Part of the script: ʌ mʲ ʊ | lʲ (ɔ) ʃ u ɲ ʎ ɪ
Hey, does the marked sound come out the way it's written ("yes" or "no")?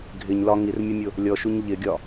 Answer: yes